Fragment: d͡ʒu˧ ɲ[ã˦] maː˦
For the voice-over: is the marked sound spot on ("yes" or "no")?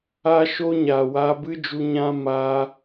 yes